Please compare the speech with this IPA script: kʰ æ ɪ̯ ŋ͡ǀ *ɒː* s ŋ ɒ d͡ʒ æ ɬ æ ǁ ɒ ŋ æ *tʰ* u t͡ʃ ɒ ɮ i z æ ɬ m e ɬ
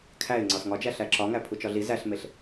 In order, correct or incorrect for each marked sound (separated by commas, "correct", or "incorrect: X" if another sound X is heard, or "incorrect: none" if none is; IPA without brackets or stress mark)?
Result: incorrect: ɒ, incorrect: pʰ